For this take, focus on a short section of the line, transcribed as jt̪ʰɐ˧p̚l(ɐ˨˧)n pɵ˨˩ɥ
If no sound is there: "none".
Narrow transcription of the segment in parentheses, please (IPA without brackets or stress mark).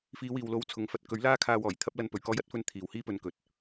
ɐ˨˧